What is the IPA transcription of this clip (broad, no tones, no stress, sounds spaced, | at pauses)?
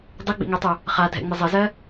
dˤ ɯ ɡ͡b ḭ ŋ ø tˤ u | χ a dʱ ɛ̰ ŋ͡m ɘ zˤ ɘ z ɜ